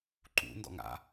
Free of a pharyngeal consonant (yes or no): yes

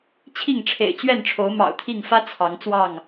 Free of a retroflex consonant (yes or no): no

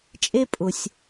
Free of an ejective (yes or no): no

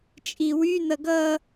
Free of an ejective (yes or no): no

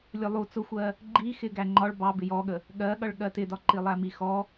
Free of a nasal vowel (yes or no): yes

